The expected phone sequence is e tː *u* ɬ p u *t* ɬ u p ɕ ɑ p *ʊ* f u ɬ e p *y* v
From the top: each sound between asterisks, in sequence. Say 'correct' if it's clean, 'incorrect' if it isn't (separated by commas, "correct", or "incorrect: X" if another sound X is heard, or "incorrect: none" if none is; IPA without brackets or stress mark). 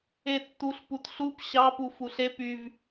correct, correct, incorrect: u, correct